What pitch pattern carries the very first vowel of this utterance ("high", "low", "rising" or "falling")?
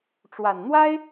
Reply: low